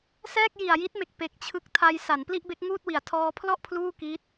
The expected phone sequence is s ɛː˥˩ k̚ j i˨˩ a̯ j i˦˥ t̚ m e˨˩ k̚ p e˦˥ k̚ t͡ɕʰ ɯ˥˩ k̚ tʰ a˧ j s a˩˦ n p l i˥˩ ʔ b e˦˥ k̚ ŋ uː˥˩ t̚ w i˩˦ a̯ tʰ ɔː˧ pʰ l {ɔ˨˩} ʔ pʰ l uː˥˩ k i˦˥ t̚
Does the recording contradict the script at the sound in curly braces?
yes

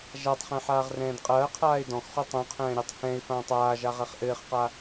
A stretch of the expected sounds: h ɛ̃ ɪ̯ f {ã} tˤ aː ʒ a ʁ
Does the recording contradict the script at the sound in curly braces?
yes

